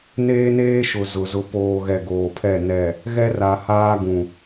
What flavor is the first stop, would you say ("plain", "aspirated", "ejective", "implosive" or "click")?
plain